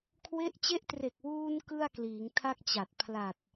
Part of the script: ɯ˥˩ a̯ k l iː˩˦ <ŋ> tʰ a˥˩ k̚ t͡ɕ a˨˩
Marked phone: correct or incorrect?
correct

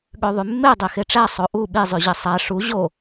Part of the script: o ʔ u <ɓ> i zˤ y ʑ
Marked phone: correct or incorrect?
correct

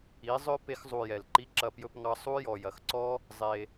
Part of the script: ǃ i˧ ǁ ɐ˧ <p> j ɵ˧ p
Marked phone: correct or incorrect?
correct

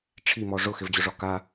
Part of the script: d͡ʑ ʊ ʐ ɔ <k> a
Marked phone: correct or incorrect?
correct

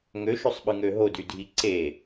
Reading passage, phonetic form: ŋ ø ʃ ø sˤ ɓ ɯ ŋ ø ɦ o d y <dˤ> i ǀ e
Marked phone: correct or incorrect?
incorrect: dʱ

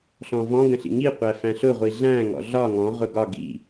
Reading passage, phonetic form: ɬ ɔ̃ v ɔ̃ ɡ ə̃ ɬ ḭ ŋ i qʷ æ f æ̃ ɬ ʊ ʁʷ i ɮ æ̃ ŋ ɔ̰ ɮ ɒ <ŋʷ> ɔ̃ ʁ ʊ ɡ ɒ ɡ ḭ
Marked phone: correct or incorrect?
incorrect: ŋ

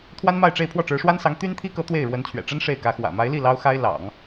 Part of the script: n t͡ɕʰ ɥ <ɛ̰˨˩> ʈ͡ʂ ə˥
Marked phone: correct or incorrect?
correct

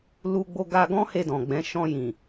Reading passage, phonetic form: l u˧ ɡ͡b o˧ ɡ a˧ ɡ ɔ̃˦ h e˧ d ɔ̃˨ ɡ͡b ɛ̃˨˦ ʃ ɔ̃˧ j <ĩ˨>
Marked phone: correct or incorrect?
correct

